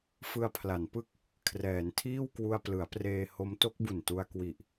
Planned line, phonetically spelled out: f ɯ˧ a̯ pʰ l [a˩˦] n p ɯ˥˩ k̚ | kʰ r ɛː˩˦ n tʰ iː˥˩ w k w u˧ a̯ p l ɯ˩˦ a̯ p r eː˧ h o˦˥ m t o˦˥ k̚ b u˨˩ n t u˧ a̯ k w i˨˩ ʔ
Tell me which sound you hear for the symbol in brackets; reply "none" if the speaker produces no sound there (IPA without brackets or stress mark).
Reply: a˩˦